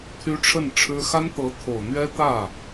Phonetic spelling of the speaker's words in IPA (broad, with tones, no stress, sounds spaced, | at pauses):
t̪ʰ y˥ ʈ͡ʂʰ ə˥˩ n ʈ͡ʂʰ ɻ̩˥ x a˥ n t̪ ɤ˧˥ t̪ʰ o˨˩ ʊ̯ n̪ ɥ ɛ˥ t̪ ä˥˩